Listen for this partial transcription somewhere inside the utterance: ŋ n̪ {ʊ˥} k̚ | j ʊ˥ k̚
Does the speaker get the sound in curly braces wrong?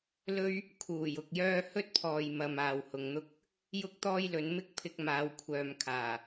no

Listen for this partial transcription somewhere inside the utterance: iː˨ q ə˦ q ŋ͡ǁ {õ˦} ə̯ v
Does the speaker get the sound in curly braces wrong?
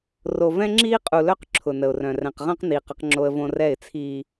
yes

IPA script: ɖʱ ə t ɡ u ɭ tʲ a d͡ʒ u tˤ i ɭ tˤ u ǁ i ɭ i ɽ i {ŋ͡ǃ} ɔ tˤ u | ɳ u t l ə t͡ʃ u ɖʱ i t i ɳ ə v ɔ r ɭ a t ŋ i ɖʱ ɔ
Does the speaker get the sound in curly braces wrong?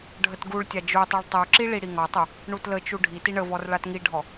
yes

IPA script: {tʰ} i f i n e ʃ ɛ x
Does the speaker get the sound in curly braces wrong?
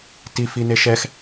yes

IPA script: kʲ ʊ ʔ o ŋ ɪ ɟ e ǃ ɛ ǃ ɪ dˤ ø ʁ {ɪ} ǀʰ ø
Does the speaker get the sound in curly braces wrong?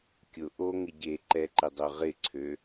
no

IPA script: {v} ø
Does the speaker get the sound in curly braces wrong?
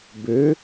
yes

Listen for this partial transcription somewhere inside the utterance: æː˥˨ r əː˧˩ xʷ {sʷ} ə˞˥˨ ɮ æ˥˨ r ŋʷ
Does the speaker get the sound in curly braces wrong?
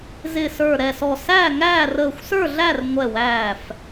yes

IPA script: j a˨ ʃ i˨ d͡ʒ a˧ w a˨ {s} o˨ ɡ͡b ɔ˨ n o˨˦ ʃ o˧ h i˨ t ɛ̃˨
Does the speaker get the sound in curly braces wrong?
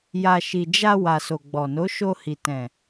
no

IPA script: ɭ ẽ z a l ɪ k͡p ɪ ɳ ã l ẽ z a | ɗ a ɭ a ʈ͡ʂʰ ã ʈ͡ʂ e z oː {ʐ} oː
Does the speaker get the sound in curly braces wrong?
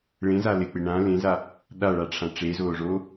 no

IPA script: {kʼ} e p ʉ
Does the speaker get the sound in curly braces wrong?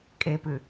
no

